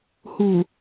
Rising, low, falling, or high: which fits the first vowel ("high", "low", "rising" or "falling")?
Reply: low